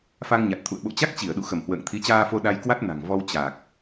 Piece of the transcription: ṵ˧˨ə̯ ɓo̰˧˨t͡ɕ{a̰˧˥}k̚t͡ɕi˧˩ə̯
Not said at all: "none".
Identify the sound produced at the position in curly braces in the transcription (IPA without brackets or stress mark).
a˦˥